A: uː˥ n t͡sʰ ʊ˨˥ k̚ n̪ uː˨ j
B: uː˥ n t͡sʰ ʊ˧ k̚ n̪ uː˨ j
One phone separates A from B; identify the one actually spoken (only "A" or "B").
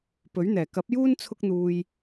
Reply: B